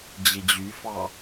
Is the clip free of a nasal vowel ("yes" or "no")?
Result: yes